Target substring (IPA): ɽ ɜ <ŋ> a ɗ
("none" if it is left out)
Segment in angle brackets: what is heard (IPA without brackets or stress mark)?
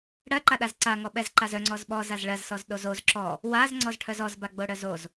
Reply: ǃ